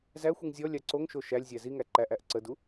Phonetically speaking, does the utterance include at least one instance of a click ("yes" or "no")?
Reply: yes